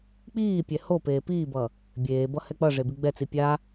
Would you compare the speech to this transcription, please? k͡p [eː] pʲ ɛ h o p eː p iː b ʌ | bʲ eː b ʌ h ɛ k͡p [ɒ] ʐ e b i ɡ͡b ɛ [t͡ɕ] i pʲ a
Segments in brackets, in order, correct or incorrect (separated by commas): incorrect, incorrect, incorrect